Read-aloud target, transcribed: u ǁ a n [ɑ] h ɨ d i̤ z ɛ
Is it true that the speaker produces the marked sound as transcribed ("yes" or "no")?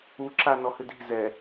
no